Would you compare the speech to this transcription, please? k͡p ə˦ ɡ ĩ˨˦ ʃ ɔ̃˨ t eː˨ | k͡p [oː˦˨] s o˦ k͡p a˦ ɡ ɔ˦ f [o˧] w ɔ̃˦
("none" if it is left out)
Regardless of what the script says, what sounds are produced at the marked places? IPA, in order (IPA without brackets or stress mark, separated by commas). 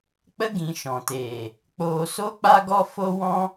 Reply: oː˧, o˦